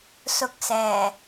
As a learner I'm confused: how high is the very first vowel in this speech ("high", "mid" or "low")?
high